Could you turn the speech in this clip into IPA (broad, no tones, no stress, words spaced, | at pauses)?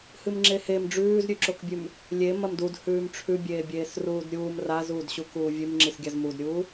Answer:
hɨmŋ͡ǁehem ɖ͡ʐʉːzɾʲʉǁokbʲʉm | lʲe mɐmdud hʉːmʈ͡ʂʰʉbʲeː bʲeːsruːdɾʲuːm razuːdɕu kuːvʲʉmŋ͡ǁisɡʲaz mudɾʲuː